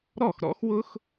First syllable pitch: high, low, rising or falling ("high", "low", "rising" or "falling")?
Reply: falling